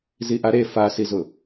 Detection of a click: absent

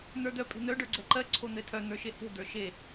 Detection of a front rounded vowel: present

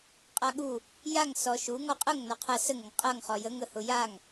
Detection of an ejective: present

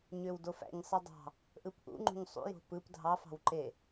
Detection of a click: present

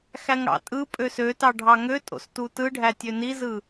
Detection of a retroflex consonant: present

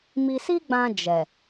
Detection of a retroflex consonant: absent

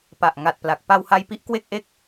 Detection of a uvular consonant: absent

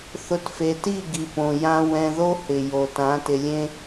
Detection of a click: absent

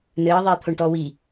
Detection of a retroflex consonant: present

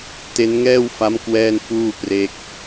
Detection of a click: absent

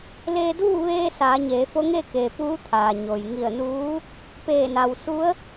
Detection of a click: absent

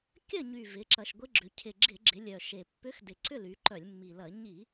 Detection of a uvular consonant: absent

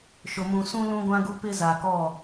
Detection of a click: absent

